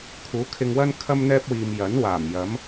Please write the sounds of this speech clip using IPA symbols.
kʰ uː˨˥ kʰ ɪ˧ ŋ w ɐ˥ n kʰ ɐ˥ m n̪ ɛː˥ p̚ w iː˨ m j ɐ˨˥ n w aː˨˩ m j ɐ˨˥ m

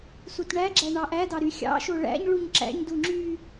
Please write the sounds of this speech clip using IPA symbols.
s u t ɳ æ ɡ͡ǁ æ ɳ ɑ ʔ æ d ɑ ɾ y xʲ ɑ̰ ʃ o ɭ æ̰ ɲ ɭ u ɲ ǁ æ̰ ɲ d u ŋ͡ǁ y

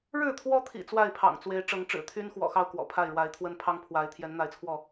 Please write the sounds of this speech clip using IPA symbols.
ɻ ɻ̩˥˨ t̪ʰ w ɔ˦ t̪ʰ ḭ˨˩ t͡s w a˥˨ ɪ̯ pʰ ɑ̰˨˩ ŋ t͡s w e˨˦ ɪ̯ ʈ͡ʂ ɤ˨˦ ŋ ʈ͡ʂ ɻ̩˨˩ t̪ʰ y˦ n x w ɔ̰˨˩ x ɑ˥˨ ʊ̯ k w ɔ̰˨˩ pʰ a˥˨ ɪ̯ ɻ w a˨˦ ɪ̯ t̪ʰ w ə˦ n pʰ ɑ˦ ŋ pʰ w a˨˦ ɪ̯ t̪ʰ j ɛ˨˦ n n̪ a˨˦ ɪ̯ t͡sʰ w ɔ˥˨

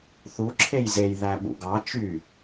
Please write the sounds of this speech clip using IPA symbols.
θ u ǁʰ e j z e j ð æ ɓ ṵ ɡ ɑ t͡ʃ y

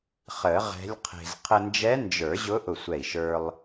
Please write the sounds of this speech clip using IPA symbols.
χ ə˨˩˦ ʁ ɛ̤˧˥ lʲ qʰ e̤˧ z qʰ ə˧ n d͡ʒ ɛ˧˥ n d͡ʒ ə˞˨˩˦ ʑ ʊ˧˥ ʔ ʊ˧˩ sʷ ɛ˧˩ i̯ ʃ ə˞˧ lˠ

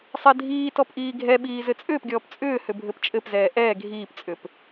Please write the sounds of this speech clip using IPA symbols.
sˤ ɛ dʱ iː t ɔ p ʔ iː ɡʱ ɛ ɓ iː z ɘ t͡sʼ ʏː p ɡʲ ɔː p t͡sʼ ʏː h ʏ bʱ ɘ p t͡ʃʼ ɘ p z ɛː ʔ ɛː ɡʱ iː p t͡sʼ ʏ p

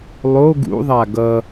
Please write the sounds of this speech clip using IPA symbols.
lˠ o ɡ ṵ ðˤ a ɡ ʌ

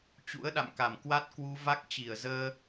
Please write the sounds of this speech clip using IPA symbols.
t͡ɕ ṵ˧˥ ə̯ ɗ a̰˧˨ m k a˧˩ m k w a˦˥ t̚ k w u˧ v a˦˥ k̚ t͡ɕ i˧˩ ə̯ z əː˧

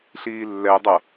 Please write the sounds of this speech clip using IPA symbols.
ɬ iː lː ɛ dˤ ʌ

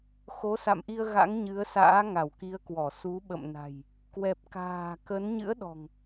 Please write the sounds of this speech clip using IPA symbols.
x o˨˦ s a̰˧˨ m ʔ i˧ ə̯ ɣ a̰˧˥ ŋ ɲ ɨ˨˦ ə̯ s a̰ː˧˥ ŋ a˧˩ w k i˨˦ ə̯ k w ɔ˧˩ s u˨˦ ɓ ə̰˧˨ m n a̤˨˩ j | k w ɛ˨˩ p̚ k a̤ː˨˩ k ə˨˦ n ɲ ɨ̰˧˥ ə̯ ɗ ɔ̤˨˩ ŋ

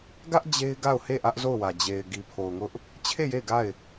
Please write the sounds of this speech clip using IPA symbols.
ɡ ä˦ ʔ d͡ʑ e˦ ɪ̯ ɡ a˦˨ ʊ̯ h e˦˨ ʔ ä˦ ʔ z o˦˨ ʊ̯ w ä˨ d͡ʑ e˨ ɪ̯ ɡ i˨ pʰ o˨ ʊ̯ ŋ ʊ˦ ʔ | t͡ɕʰ e˦˨ j e˦˨ ɪ̯ ɡ a˦˨ ɪ̯

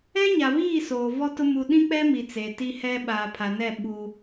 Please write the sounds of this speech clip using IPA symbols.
ɛ˦ ɲ a˨ β iː˦˨ s oː˨ v ɔ˦ t ʊ˦ m u˨ ɗ ĩ˦ k͡p ɛ˦ m i˨ t͡s e˨ t i˦ h ɛ˦ ɓ aː˨ pʰ a˨ n ɛ˦˨ ɓ u˦

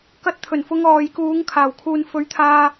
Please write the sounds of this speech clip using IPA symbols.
k ɐ˧ t̚ t̪ʰ ɵ˨˩ n f ʊ˨˧ ŋ ɔː˨ j k uː˨˧ ŋ kʰ aː˨˩ w kʰ uː˨ n f ɵ˨˧ ɥ t̪ʰ aː˧

